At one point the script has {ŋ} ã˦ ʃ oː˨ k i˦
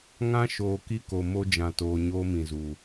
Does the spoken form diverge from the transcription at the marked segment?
no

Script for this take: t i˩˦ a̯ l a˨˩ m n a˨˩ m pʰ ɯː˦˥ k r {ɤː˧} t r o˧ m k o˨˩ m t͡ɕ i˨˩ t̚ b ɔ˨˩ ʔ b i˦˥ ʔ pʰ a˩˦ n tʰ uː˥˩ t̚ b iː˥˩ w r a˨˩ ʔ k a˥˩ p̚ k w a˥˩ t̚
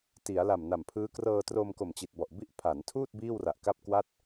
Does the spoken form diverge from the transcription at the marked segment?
no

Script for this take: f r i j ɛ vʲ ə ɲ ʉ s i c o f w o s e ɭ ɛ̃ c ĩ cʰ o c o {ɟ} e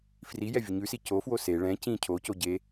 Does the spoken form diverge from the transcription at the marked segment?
no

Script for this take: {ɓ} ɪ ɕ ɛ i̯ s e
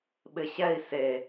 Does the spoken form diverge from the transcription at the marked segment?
no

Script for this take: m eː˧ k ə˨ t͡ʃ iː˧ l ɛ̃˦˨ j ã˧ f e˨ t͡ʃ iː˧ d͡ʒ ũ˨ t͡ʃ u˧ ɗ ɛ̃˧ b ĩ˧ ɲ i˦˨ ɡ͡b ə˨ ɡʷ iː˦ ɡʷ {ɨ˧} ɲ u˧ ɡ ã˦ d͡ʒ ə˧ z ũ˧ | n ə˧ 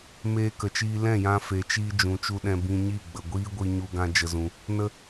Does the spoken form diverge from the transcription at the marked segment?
yes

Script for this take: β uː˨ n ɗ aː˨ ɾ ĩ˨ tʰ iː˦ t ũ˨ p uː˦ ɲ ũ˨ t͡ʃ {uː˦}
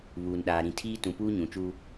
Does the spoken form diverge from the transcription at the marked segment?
no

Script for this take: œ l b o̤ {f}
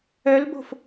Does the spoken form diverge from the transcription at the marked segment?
no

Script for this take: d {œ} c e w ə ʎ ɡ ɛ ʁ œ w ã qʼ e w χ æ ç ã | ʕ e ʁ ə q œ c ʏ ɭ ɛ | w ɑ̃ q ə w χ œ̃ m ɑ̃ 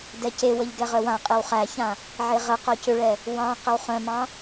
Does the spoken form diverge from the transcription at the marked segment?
yes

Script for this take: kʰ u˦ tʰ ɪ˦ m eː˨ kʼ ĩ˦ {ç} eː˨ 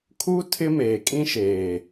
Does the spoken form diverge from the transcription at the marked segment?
yes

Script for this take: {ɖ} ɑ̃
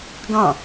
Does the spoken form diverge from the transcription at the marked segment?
yes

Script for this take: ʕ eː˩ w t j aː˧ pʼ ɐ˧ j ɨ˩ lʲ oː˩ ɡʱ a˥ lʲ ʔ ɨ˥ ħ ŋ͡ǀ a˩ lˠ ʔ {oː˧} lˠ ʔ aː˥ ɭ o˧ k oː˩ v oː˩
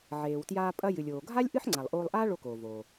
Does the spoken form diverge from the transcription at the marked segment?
no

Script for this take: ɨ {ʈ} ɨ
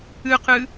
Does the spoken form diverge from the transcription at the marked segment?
yes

